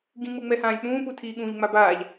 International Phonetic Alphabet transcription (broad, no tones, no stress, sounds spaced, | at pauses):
ɡ ĩ ŋ͡m ɯ ŋ͡m ɛ h ãː lʲ k͡p ũː p u tʰ iː ɠ ũː ʎ ŋ͡m a b aː ʎ